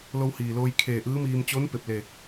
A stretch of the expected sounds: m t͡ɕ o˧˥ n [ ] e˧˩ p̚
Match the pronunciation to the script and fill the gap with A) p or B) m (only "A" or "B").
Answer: A